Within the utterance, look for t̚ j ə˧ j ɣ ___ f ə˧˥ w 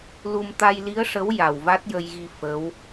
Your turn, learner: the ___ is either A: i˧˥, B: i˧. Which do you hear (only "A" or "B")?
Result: B